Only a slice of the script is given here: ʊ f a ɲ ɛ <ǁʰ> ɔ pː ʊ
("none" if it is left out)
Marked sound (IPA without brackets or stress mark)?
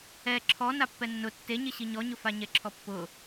ǁʰ